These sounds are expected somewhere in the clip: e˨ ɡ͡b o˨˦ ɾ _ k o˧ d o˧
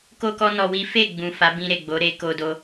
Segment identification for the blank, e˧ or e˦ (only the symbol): e˧